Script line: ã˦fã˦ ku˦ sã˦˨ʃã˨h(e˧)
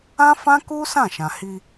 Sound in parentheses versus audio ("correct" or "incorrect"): incorrect